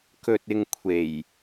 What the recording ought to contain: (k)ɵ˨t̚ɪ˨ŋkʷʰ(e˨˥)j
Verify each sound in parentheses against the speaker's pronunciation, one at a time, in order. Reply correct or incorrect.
correct, incorrect: e˨˩

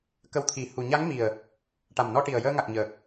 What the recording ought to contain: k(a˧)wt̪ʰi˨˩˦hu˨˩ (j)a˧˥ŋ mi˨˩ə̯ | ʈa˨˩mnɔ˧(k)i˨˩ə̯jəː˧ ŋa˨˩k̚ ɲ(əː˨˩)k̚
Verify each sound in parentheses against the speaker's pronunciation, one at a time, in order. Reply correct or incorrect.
incorrect: ə˧, incorrect: ɲ, incorrect: ʈ, correct

